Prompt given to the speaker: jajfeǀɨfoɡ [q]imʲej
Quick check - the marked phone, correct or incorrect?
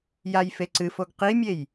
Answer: correct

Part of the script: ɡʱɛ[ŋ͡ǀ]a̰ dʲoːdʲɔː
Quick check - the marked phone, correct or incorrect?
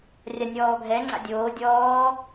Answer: correct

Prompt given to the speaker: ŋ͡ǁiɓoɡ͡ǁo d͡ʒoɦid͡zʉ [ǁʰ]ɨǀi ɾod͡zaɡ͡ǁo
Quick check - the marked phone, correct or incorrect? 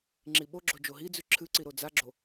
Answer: correct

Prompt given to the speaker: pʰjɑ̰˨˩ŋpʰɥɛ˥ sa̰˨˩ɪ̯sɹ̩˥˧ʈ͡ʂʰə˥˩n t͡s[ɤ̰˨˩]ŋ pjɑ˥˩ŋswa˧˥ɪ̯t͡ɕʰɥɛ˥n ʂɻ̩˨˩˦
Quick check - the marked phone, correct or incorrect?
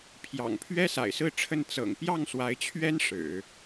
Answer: correct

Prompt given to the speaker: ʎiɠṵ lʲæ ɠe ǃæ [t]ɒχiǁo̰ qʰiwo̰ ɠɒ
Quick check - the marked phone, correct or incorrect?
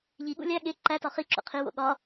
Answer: correct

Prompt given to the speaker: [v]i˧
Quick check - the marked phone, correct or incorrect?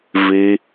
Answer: correct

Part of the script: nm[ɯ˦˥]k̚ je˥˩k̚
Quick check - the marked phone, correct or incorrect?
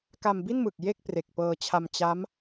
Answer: incorrect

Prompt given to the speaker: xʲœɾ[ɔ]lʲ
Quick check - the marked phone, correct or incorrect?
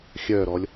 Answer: correct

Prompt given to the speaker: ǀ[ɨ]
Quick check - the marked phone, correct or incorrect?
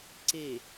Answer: incorrect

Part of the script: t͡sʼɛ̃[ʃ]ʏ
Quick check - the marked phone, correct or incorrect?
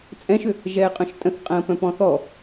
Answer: correct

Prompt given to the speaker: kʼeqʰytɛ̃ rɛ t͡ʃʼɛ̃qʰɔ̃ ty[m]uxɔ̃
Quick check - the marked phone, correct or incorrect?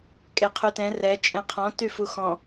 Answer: incorrect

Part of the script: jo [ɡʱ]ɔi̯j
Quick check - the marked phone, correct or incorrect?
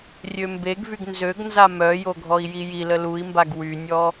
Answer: correct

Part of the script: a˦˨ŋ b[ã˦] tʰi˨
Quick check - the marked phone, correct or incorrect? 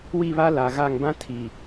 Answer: correct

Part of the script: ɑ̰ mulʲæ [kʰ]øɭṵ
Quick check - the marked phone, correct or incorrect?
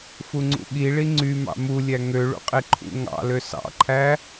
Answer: incorrect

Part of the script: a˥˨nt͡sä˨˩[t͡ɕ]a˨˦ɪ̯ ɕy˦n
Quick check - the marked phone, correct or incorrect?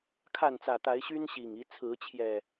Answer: incorrect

